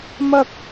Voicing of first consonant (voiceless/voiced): voiced